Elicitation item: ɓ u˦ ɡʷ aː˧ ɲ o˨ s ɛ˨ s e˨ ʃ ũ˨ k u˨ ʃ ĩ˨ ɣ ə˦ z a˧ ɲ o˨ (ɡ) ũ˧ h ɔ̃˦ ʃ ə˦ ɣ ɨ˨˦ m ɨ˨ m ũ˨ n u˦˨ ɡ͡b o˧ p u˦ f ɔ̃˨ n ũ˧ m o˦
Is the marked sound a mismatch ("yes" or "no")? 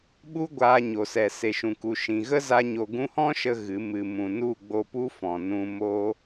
no